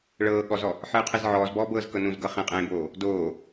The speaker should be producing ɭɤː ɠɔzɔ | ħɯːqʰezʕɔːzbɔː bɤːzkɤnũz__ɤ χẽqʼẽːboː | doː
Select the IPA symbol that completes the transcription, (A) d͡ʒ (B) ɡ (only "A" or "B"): B